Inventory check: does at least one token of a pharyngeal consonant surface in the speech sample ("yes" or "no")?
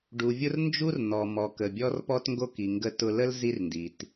no